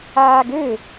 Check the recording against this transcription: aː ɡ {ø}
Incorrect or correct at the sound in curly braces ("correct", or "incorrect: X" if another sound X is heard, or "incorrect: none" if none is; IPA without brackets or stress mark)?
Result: correct